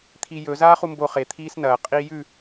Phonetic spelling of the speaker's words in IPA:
t̪ʰ i j ɵ z aː χ u m b o χ e t̪ʰ iː s n ɐː qʼ iː j ʉ

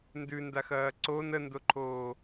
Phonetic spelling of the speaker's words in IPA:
n d ʉ n d a x ɐː ǀ o n ə n d o ǃʰ oː

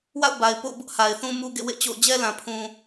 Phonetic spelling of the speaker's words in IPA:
w a̰˦˨ ʊ̯ b a˨ ɪ̯ p o̰˦˨ ʊ̯ b ʊ˦ ʔ h a˨ ɪ̯ θ ũ˦ m u˦ ɡ ḛ˦˨ w ḛ˦˨ t͡ɕ o̰˦˨ ʊ̯ d͡ʑ ɛ˦ l ã˨ pʰ ũ˨

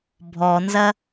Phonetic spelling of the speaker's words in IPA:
bʱ ɔ n z ɐ

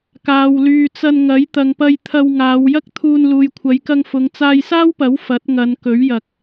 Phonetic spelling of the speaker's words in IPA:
k aː˨ w l yː˨ t͡s ɐ˧ n ŋ ɐ˨˥ j t̪ ɐ˨ ŋ p ɐ˧ j t̪ʰ ɐ˧ w ŋ aː˨˧ w j ɐ˥ k̚ t̪ʰ uː˧ n l uː˨ j kʷʰ ɐ˨˧ j k ɐ˧ ŋ f ʊ˨˧ ŋ t͡s aː˧ j s aː˥ w p ɐ˨˥ w f ɐ˨˥ t̚ ŋ ɐ˨˧ n k ɵ˨˥ ɥ j ɐ˨ k̚

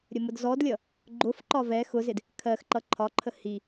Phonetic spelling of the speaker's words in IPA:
ɾʲ ə m ʊ d z ɔ d lʲ ʌ | ɡ͡ǃ ʊ f ǃ ɒ v ɛ x ʊ z ɪ d | kʰ ɜ x ǃ ʌ ǃʰ ɒ ǃʰ ə h i

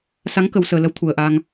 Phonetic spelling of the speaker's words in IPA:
s a˨˦ ŋ k ə˨˩ w s əː˨˩ l ə˨˦ w t̪ʰ u˨˩ ə̯ ʔ aː˧ ŋ

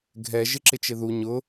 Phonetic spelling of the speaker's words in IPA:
ɡʱ ɛ ʒ ɪ ǁ ɪ t͡ʃ ɪ ð u ɲ ʊ

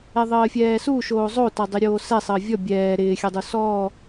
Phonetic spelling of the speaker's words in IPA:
ɛ ðˤ əː fʲ ɛː s u ʃ oː zˤ o t a dˤ ɪ ɾʲ oː s ɛ sˤ əː vʲ ɔ bʲ ɛː ɾ ɪː xʲ ə dˤ u s ɔ

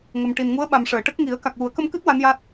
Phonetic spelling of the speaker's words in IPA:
ŋ ə˨˩ m ʈ i˨˩ n ŋ u˧˥ ə̯ ɓ a˨˩ m ʂ əː˨˩˨ ʈ ə˦˥ k̚ ŋ i˨˩˦ ə̯ k a˨˩ k̚ w u˨˩˦ ə̯ k ə˧ m k ɨ˦˥ t̚ w a˧˥ n j a˦˥ t̚

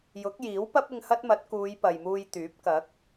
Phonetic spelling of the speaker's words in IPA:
j ʊ˨˥ k̚ j iː˨˥ w p ɐ˥ p̚ ɪ˧ ŋ h ɐ˥ t̚ m ɐ˨˥ t̚ k uː˨˧ j p ɐ˨ j m uː˧ j t̪ yː˨˥ p̚ k ɐ˨˥ k̚

